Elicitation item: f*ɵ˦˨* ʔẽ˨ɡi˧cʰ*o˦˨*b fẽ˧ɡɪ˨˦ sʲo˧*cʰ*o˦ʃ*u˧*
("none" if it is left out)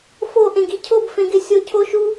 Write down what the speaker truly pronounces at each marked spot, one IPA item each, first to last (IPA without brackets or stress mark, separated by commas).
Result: o˦˨, o˦˨, cʰ, u˦